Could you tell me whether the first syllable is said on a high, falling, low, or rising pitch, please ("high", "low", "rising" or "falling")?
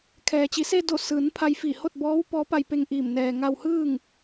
low